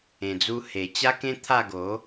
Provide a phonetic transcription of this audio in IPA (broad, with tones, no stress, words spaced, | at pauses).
ẽ˨˩d͡zu˧ he˨˩t͡ɕa˦kẽ˦t̪ʰa˥˧ ɡo˨˦